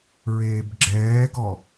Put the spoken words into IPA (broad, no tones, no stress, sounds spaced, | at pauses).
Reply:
ɹ eː b ɡ͡ǁ ɛː ɡ ɔ